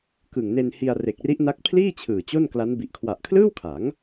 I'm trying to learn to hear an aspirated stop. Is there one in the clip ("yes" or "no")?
yes